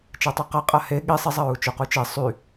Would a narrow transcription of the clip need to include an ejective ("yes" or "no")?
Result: yes